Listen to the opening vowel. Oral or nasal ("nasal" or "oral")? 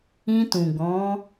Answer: nasal